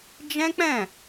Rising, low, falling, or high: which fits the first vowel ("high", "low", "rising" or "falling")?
high